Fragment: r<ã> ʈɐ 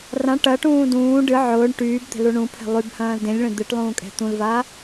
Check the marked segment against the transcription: correct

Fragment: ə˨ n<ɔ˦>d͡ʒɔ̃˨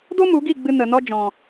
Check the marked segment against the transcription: correct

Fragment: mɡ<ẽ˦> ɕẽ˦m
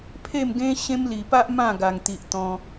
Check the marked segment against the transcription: correct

